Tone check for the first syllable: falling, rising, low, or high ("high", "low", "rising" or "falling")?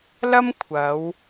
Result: high